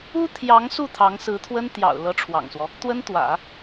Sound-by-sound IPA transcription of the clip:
u˥ t̪ʰjɑ˧˥ŋsu˥˩ t̪ʰɑ˧˥ŋsɹ̩˧˥t̪ʰwə˥n t̪jɑ̰˨˩ʊ̯ lɤ˧˥ʈ͡ʂʰwɑ̰˨˩ŋswɔ˦ | t̪wə˥nt̪wä̰˨˩˦

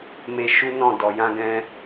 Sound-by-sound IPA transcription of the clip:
me˧ ʃu˦nɔ̃˦˨dɔ˨ jã˧ɡɛ̃˧

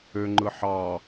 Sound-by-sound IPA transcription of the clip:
øŋ͡ǃɯ ħɑ

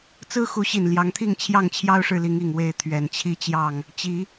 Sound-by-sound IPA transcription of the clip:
t͡sɹ̩˦xu˨˦ɕi˨˩n ljɑ˨˦ŋt̪ʰi˥˨ŋ t͡ɕʰjɑ˥˨ŋt͡ɕʰjɑ˦ʊ̯ʂɻ̩˨li˨˦ŋ i˨˩ŋwe˥˨ɪ̯ t̪ʰɥɛ˨˩nt͡ɕʰi˦t͡ɕjɑ˥˨ŋ | t͡ɕi˨˦

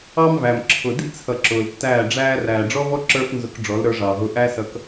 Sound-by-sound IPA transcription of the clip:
ɑ˦mvæ˨mǁʰʊ˨ dḭ˦t͡sʰʌ˨ ǁʊː˨ltːæː˦˨ɖ͡ʐæː˦ ræː˨ɖ͡ʐɔ˦vɔ˦ ǁə˞˦fnzʊ˧k ɖ͡ʐɔ˨˦lɾə˞˧ ʐɑː˨ɦʊ˧ ʔæ˦sʌ˧k

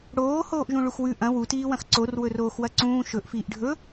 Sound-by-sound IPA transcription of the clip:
ɽoː hoːʔʒũɭuxwʉ ʔɐ̃ wutiːwɐ̃x ǀor wɵroːxwɐǀũː ʃɵʔ fiːʔɖʱɵ

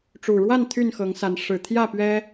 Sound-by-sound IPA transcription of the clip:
ʈ͡ʂu˨˩ɻwa˥˨n t̪ʰy˥˨nxɤ˨˦ŋsa˨˦n ʂɻ̩˨˩ t̪ʰjä˥˨ pɥɛ˦

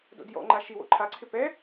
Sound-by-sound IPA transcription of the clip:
do̰djɔ̰ŋ͡ǃa ʃiwo̰ ǃʰaǀʰɪ pɛ

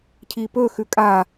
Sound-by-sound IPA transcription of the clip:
cʰipɵ xʉkʼa

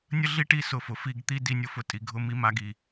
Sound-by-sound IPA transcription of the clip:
nʲə˦ɮi˦ ʈi˦sʊ˧fʊ˨ fi˦˨ɡt̪i˦ di˧nʲʊ˦fʊ˧ tʼi˨ɡʱʊ˦mi˦ ma˧ɡi˨

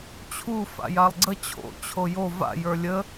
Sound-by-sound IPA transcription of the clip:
t͡ɕʰu fa̰jalˠɡ͡ǀə t͡ɕʰo̰ t͡ɕʰojo va̰jə˞ lʲə

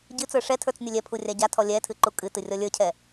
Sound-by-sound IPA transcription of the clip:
ɟɨt͡sə˞ ʂɛtʰə˞t͡s nʲʊlʲɛpʰu rʲaɟatʰɔ lʲɛtʰɨ ǃukʼɨtɨ rʲɔlʲə˞cʰɛ

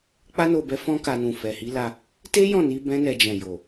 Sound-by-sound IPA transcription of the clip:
k͡pa˦no˧bɛ˧ fɔ̃˦ka˧nũ˨ fɛ˨hi˨˦la˧ | te˦jɔ̃˦˨ ni˨˦bɛ̃˦nɛ˧d͡ʒɛ̃˨ jo˨

